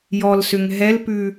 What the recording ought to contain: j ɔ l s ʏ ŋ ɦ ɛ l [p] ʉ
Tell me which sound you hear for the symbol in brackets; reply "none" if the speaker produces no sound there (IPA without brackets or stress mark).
p